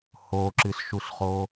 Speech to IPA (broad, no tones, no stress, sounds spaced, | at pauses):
h o ǁ ɨ s ʃ u s χ o